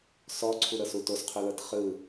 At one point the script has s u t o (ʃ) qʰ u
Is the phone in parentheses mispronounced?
yes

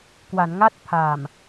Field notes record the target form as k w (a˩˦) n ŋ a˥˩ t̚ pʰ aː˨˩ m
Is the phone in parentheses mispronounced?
no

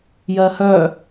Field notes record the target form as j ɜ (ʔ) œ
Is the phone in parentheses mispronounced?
yes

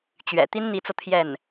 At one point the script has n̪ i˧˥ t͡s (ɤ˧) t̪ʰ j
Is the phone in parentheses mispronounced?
no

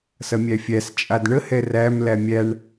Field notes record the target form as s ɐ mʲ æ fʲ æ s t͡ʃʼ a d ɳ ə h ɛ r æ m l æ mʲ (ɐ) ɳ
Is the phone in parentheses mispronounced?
yes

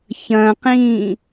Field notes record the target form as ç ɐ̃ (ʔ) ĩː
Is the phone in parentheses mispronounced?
yes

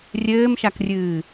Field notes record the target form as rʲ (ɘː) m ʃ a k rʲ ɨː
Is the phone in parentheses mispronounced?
no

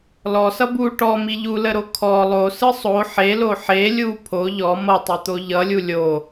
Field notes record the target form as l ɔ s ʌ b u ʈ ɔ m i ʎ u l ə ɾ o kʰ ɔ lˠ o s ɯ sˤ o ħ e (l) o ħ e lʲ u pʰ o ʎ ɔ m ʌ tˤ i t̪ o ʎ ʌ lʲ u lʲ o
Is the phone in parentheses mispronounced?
no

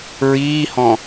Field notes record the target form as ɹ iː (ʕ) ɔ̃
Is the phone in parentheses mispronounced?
yes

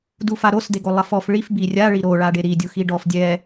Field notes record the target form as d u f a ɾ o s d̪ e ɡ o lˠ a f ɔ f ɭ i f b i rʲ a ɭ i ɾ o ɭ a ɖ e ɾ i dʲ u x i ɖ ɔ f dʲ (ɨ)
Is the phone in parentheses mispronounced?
yes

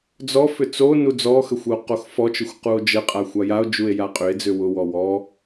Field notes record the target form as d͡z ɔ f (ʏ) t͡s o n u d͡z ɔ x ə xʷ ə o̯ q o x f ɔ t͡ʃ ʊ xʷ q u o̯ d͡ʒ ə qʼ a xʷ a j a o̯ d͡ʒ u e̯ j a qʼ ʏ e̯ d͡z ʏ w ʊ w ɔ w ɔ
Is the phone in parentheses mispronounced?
no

